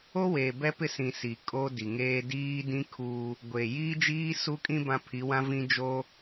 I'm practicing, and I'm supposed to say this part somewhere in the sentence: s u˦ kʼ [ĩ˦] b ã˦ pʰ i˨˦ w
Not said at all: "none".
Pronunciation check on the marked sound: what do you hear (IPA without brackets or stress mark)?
ĩ˦